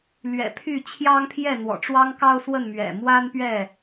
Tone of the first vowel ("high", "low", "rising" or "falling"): low